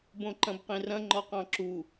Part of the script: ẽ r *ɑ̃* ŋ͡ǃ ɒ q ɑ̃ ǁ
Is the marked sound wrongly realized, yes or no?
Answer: yes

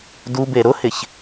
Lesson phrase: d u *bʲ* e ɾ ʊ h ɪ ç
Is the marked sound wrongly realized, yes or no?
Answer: yes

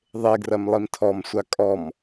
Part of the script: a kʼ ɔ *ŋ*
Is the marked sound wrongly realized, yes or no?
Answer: yes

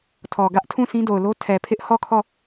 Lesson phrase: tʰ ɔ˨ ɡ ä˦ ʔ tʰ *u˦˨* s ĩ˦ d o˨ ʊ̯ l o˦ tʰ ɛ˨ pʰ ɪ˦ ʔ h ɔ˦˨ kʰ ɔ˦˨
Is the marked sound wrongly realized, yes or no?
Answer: yes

